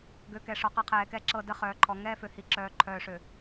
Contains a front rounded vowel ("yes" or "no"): yes